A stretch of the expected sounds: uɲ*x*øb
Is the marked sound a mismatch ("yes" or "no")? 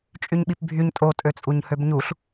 yes